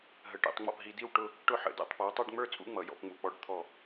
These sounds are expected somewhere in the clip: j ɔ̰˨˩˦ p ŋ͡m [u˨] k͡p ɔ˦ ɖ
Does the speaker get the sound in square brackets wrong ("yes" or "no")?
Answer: no